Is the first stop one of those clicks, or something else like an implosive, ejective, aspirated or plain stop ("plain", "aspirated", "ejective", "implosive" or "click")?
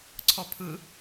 click